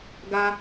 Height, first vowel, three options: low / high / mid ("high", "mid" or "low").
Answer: low